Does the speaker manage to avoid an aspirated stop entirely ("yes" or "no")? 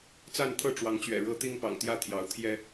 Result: no